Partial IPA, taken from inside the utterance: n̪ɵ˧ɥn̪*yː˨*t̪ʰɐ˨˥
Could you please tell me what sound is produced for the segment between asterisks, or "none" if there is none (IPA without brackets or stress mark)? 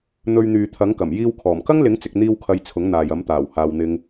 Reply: yː˨